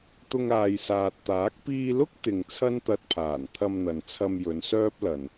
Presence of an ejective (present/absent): absent